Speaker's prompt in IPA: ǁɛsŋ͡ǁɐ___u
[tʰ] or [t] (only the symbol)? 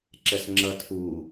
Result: tʰ